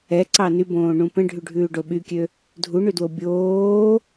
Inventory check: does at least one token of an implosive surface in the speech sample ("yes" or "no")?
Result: yes